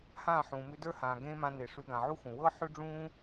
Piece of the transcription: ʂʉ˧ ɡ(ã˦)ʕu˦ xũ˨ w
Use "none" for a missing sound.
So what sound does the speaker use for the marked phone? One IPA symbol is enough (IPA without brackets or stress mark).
ã˨